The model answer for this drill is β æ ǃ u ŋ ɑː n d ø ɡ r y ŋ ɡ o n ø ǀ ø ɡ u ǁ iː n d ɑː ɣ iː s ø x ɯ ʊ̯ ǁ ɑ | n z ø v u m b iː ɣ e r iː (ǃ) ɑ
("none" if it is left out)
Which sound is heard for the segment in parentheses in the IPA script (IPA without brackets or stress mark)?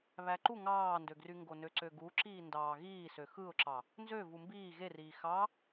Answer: x